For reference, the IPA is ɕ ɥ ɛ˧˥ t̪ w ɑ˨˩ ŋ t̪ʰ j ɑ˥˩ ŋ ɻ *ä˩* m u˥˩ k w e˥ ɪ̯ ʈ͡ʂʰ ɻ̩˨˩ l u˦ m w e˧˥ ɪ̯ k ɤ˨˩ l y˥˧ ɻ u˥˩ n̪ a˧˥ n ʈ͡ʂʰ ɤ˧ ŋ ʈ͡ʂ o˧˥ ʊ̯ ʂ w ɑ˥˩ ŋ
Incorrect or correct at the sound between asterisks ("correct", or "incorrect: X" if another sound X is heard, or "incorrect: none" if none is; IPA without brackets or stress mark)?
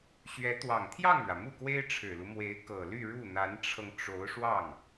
correct